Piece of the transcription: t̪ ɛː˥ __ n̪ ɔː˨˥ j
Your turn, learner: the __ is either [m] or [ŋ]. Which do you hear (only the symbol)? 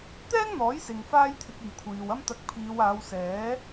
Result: ŋ